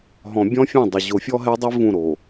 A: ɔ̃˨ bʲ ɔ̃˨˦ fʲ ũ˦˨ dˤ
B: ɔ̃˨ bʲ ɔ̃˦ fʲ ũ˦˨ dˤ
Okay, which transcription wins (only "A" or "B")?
B